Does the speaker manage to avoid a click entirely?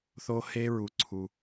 no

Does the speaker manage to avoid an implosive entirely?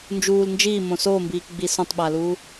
no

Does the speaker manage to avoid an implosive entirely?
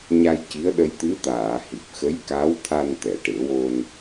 no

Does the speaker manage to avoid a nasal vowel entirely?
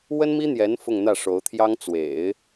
yes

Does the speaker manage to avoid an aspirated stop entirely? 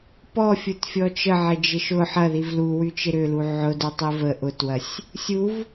yes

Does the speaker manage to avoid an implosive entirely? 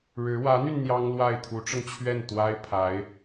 yes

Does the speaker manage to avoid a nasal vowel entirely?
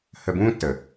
no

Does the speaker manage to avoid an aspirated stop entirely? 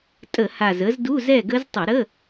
yes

